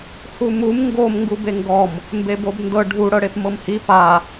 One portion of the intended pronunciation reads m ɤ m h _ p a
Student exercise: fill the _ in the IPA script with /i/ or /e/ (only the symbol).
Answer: i